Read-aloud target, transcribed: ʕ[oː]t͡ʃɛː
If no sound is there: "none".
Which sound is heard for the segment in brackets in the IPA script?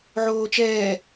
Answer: oː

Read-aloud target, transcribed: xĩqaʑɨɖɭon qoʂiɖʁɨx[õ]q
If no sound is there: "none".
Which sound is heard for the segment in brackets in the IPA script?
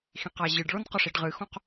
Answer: õ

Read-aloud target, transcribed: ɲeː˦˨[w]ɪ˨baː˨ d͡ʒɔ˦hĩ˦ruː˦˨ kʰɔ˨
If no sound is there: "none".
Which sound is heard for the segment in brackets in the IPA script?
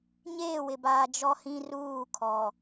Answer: w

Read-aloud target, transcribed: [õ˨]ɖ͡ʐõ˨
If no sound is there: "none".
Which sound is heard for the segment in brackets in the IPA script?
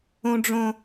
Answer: õ˨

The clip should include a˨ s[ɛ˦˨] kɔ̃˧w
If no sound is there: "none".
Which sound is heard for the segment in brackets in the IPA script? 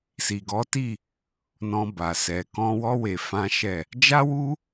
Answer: ɛ˨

